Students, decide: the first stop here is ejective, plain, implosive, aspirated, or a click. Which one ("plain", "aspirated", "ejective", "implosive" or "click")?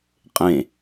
ejective